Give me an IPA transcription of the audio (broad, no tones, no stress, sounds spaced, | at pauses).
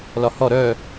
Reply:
l ɒ h ɔ ɾ œ